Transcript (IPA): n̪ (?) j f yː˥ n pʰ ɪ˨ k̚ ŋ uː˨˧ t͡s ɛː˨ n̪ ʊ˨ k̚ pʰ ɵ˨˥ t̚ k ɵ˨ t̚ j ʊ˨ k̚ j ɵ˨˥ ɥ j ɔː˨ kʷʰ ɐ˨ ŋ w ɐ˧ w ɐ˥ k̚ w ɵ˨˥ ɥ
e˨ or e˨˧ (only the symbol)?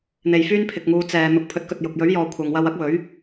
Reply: e˨